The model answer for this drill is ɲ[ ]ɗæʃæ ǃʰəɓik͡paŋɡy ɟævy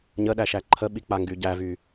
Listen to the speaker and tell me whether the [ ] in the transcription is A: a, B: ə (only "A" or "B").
B